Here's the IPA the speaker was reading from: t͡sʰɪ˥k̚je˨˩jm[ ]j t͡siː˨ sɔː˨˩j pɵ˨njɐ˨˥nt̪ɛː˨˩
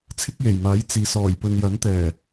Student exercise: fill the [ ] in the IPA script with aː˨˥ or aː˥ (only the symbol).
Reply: aː˨˥